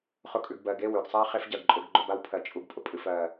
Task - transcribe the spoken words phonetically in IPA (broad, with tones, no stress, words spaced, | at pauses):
χʊ˧kʼʉ˨ɡbɜ˨ ɡe˦˨wʉ˨ɡsˤa˦ χe˦fɟɜ˨ɡǃʼʊ˧ɡɡ͡ǃʊ˧ ba˦wpʰɜ˨t͡ʃʼu˧ɡpʼʊ˨ pʼɨ˨f ɜ˨